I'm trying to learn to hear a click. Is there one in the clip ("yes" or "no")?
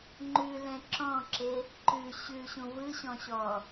yes